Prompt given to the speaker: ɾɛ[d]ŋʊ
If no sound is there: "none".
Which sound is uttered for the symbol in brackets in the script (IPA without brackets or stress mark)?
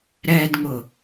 d